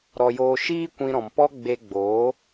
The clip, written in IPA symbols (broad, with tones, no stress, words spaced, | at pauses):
ɾɔ˧joː˧ ʃiː˦kʷĩ˧ɾɔ̃˨m pɔ˦ ɡ͡be˧ ɡ͡bo˨˦